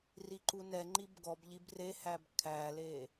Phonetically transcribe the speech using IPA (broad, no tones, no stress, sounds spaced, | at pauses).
r i ǃ u n ɛ ŋ͡ǃ i b ɡ ɔ b ʎ i b r e h æ b kʰ æ l e